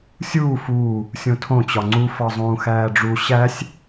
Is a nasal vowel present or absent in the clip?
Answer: present